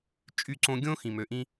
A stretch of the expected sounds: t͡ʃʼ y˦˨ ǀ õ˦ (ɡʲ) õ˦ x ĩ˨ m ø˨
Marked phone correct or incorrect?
correct